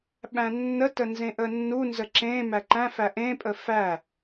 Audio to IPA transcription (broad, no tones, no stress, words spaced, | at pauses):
ɓæ̃nːətə nzẽʔənːunzə ǁẽ mæǃæ̃fæ ʔẽpʼə fæ